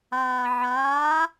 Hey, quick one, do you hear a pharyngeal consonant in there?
yes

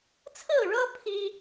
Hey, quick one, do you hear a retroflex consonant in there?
yes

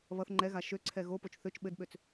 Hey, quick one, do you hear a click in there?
yes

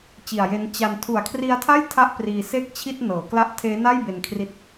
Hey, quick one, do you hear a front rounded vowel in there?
no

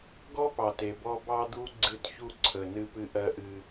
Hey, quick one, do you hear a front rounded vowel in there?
no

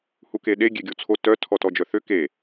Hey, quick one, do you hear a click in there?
no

